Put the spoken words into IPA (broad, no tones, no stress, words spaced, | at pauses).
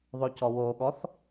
ðˤocɔwoɠɔθ